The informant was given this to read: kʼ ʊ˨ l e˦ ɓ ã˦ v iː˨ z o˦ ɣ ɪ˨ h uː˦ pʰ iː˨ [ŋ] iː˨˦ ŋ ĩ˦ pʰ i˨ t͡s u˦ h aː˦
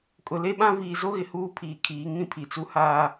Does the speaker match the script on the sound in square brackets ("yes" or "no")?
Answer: no